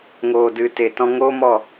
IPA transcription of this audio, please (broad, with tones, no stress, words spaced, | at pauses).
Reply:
ŋoː˨dɨ˨ te˨tɔ̃˧ ŋoː˦mɔ˦˨